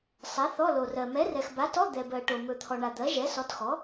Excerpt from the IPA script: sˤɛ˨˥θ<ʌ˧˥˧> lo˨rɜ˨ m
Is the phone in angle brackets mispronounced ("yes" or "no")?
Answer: yes